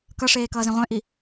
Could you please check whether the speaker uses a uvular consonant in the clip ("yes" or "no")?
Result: yes